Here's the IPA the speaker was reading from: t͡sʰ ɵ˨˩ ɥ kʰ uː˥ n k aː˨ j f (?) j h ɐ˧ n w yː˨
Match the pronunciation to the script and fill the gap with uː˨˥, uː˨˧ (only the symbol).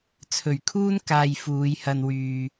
uː˨˧